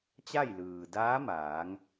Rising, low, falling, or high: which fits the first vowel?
falling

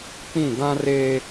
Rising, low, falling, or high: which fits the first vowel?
falling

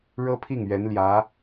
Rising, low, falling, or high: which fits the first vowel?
high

